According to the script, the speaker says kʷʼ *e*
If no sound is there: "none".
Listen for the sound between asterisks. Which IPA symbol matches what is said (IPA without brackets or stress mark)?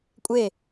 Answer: e